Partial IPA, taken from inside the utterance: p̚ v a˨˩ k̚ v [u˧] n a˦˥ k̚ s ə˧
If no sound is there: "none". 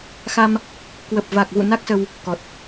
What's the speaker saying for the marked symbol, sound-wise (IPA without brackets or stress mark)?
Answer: ṵ˧˨